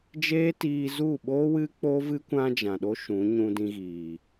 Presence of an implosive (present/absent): present